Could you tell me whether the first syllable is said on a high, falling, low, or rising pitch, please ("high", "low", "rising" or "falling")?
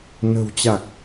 low